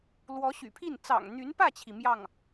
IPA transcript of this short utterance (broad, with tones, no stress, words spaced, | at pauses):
lwɔ˧˥ɕy̰˨˩pʰi˥˩n t͡sɑ̰˨˩ŋn̪y˧˥npä˥˩t͡ɕʰi˩ mjɑ˥˩ŋ